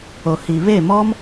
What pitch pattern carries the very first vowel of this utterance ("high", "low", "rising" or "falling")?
low